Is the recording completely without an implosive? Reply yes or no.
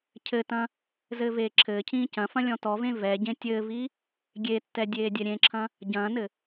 yes